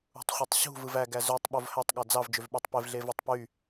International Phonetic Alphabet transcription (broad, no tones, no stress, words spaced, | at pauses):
ṳtˤχʷitˤɕṳ vɯvæ ɡæzøtˤ ɓovhætˤ ɠɑd͡zɑv d͡ʒøvɓætˤpev ɮevætˤpy